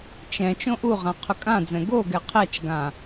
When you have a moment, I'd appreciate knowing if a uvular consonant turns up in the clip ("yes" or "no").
yes